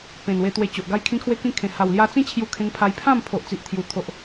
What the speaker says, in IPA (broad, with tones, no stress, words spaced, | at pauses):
pẽ˨˩nwe˧t̪we˧t͡ɕo˨ʔ ɡa˧jkʰĩ˧ kʰwe˦kĩ˦kʰẽ˨˩ ha˨˩wlja˧t͡sĩ˦t͡ɕʰju˧ kʰẽ˧ŋpʰa˧j pʰã˥˧m pʰo˨ʔt͡si˨ʔt̪ʰju˨˩ t̪ʰo˨ʔ